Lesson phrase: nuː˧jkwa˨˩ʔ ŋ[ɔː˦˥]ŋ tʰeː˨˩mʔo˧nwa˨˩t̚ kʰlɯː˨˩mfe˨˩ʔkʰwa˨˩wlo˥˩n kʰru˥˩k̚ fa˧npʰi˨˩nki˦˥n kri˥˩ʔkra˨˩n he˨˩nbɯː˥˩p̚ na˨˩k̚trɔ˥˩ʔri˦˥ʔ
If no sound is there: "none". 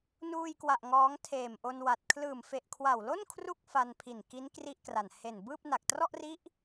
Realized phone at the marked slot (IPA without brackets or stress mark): ɔː˦˥